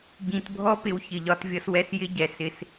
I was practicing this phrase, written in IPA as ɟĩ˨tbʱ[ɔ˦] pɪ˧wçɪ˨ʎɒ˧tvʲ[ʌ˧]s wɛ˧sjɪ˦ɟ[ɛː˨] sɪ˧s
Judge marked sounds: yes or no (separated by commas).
yes, yes, no